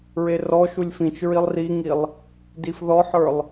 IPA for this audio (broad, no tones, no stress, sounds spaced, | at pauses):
ɹ e r ɔ ʃ u lʲ f ĩ t͡ʃ ɹ i lˠ r i ŋ i lˠ | d i f ð ɔ ħ ə˞ lˠ